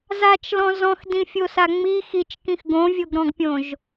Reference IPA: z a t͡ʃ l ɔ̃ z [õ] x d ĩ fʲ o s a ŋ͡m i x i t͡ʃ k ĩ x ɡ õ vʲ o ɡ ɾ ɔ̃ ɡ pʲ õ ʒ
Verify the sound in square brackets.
incorrect: ɔ̃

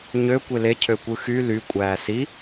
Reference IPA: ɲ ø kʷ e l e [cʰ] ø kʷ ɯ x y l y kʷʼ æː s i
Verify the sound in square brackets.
correct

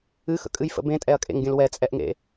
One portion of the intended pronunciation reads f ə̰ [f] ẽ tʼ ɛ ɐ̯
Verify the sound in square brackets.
incorrect: b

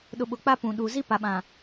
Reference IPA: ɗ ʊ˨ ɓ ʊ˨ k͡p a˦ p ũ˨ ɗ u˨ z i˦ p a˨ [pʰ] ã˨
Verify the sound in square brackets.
incorrect: ɓ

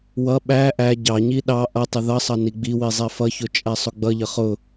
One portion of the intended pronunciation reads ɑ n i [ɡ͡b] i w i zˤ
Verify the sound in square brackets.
correct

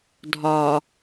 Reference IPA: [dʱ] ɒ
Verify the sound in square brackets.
correct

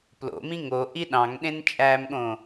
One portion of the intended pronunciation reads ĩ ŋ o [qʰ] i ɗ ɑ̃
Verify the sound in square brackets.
incorrect: ʔ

